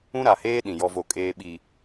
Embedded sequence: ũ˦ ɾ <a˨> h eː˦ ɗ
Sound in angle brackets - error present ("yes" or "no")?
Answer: no